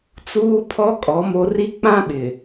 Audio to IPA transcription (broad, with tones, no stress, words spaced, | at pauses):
t͡suː˦pʰɔ˦ kʼɔ˨˦mo˦ ri˦k͡pã˦ɓɪ˨